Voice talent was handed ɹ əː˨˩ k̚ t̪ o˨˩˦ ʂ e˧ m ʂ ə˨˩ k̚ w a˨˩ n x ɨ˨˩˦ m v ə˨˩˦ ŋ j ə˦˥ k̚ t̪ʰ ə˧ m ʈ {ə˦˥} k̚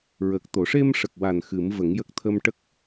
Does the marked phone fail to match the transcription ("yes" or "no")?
no